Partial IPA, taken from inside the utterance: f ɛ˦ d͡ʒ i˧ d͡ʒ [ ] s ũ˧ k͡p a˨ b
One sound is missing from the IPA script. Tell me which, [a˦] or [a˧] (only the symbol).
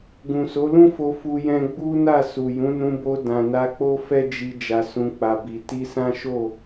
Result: a˧